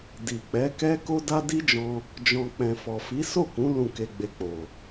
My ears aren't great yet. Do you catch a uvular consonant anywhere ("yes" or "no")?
no